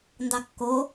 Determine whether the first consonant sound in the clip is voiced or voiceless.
voiced